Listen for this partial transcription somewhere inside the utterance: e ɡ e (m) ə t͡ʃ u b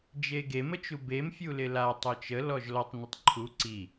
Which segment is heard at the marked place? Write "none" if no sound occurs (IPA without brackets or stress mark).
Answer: m